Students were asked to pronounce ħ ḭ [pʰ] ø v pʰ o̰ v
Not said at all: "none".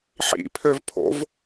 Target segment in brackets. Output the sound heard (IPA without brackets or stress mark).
pʰ